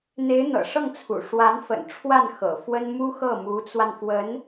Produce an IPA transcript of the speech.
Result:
n̪e˧˥ɪ̯n̪ɤ̰˨˩ʂɤ˥˩ŋt͡sʰṵ˨˩ ʂwa˧˥nfə̰˨˩n ʈ͡ʂʰwa˥˩n xɤ̰˨˩fwə˥n mu˥xɤ˥˩mu˧˥t͡swa˧n fwə˧˥n

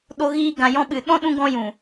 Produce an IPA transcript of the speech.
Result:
ɗo˧ɣiː˧ ɡã˨jɔ̃˧ɓɨ˨ɗɔ̃˦ ɗũ˧ɡɔ̃˧jũ˨

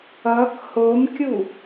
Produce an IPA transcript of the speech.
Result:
ʌk homkʲu

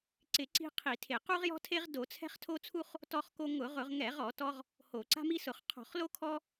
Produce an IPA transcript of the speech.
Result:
ǀɪ˧˩˧ǀi̤˦ qʰi˧˩˧tʰe˧˩˧ qu˦ʁjɔ̤˦tʰe˦ʁ do˧˩˧t͡sʰɛ̤˦χ tʰo˦t͡sʰu˦χ | tɔ˦χko˦ ŋʊ˧˩˧ʁʊ˧˩˧ʁŋɛ˧˩˧ʁɔ˧˩˧ tɔ˦ʁ | ho˧˩˧ ǀa̤˦mi˦sʊ˧˩˧χ qʰɔ̤˧˩˧χlo˦ kʰɔ˦

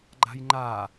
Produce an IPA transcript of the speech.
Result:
ɡ͡ǃa̤jŋ͡ǃa

